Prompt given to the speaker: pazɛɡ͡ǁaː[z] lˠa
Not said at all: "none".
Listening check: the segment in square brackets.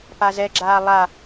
none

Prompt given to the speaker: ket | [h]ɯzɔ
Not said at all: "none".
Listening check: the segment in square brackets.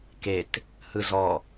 h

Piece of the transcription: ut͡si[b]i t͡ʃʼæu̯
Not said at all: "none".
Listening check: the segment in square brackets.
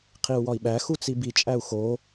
b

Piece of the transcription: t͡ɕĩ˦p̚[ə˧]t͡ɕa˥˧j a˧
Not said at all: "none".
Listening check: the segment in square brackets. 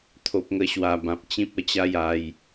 ə˧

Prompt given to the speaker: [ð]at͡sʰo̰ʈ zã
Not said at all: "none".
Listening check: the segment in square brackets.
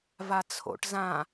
v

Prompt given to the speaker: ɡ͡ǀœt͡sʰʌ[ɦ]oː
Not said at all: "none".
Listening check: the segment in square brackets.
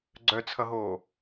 ɦ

